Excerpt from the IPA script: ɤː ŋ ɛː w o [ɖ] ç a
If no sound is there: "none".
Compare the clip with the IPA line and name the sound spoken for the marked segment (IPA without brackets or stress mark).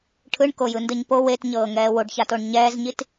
ɖ